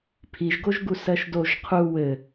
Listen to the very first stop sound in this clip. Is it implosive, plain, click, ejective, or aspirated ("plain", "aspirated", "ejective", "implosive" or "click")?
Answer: aspirated